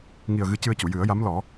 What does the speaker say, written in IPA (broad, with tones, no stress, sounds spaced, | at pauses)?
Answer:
ŋ i˨˩ ə̯ ɣ ɨ˧˥ c ɨ˧ ə̯ c u˨˩˨ j ɨ˨˩˦ ə̯ j a˧˥ m l ɔ˨˩˦